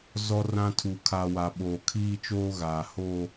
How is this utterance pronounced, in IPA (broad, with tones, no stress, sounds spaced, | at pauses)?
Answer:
z ɔ˦ r ã˦ tʰ u˨ kʰ aː˨ w a˨ ɓ oː˨ kʰ iː˦ t͡ʃ oː˦ ɣ aː˨ h oː˦